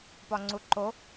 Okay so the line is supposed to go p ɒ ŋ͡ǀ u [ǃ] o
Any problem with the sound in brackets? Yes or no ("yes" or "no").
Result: no